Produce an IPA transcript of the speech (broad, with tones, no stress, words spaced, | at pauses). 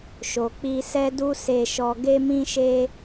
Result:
ʃo˨k͡pi˧sɛ˦ du˦se˧ʃɔ˧ ɡe˧mĩ˧ʃe˧